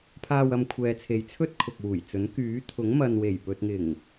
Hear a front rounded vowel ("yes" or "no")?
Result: yes